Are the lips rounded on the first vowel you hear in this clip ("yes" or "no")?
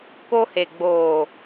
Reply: yes